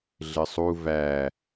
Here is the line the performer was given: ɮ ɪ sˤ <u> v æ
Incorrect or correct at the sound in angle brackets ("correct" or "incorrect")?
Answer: correct